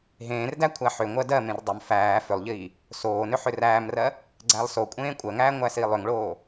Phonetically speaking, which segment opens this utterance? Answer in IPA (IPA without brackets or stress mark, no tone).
ɦ